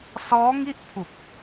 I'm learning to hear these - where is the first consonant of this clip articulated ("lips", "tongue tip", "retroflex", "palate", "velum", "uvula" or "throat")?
tongue tip